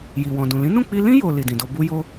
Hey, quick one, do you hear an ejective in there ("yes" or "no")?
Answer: no